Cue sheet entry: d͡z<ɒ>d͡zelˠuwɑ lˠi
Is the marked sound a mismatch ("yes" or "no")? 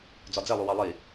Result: no